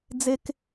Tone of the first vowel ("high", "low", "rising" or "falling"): high